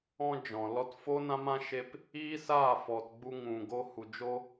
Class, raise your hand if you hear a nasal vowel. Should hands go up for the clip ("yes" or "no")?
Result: yes